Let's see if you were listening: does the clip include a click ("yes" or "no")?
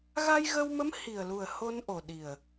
no